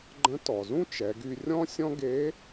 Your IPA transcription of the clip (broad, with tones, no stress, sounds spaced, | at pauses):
ɡ͡ǃ ə̃˧˥ t ɔ˩ z ũ˥ t͡ʃ ɛ˩˧ ɡ y˧ rʲ ɔ̃˥ sʲ ɔ̃˥ ɡ e˧˥